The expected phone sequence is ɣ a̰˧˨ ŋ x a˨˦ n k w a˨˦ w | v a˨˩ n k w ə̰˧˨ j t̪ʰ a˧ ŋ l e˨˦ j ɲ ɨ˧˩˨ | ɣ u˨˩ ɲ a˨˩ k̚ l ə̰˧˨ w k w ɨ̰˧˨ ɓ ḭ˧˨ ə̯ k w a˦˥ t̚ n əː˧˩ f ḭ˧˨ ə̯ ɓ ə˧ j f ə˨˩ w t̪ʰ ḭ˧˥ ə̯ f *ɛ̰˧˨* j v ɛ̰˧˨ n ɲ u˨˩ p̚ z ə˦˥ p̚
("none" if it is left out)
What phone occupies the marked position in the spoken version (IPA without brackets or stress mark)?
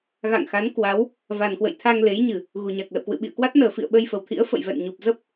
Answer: ə̰˧˨